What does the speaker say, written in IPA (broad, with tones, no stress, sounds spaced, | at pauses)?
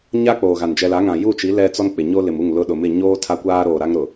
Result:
ɲ a˦ k͡p oː˨ ɣ a˨ n d͡ʒ ɛ˨ l a˨˦ ŋ ã˨ j u˦˨ t͡ʃ i˨˦ l ɛ˦ t͡s ɔ˦ n k͡p ɪ˨ ɲ o˦ l ɪ˨ m u˦˨ ŋ l ʊ˦ ɗ ʊ˨ m ɪ˦˨ ɲ oː˦ tʰ a˦ kʷ aː˦ ɾ oː˨ ɾ a˦ ŋ ɾ ʊ˨